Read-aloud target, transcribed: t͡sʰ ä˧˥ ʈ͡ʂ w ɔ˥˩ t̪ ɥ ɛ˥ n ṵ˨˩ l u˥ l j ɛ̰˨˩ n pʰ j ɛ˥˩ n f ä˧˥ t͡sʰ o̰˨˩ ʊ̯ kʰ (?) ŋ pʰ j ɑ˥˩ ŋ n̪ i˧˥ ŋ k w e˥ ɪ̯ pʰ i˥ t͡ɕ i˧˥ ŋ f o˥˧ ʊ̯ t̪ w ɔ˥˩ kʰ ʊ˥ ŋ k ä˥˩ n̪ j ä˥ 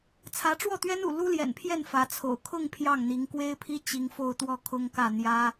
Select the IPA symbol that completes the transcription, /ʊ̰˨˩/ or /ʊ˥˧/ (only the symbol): ʊ˥˧